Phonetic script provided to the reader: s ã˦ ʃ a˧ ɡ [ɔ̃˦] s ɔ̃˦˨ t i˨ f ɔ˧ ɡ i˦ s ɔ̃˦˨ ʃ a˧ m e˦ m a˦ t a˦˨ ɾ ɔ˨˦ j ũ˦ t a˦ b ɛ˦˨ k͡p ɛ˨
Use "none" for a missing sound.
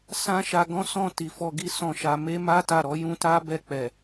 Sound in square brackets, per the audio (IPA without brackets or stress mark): ɔ̃˦